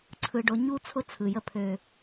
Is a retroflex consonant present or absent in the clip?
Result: present